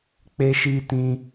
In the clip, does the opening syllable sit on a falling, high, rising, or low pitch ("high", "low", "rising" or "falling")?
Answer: high